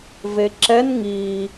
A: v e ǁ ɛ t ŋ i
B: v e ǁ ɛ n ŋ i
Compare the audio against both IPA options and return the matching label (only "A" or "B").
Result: B